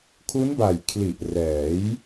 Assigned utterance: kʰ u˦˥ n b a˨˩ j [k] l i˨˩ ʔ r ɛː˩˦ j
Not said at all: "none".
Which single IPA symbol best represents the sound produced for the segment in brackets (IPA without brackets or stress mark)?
kʰ